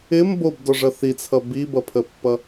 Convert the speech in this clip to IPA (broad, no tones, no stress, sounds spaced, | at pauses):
ɪ m b o b d ɔ ʐ ʌ θ i t͡sʰ ʌ b i b ʌ pʰ ə pː ʌ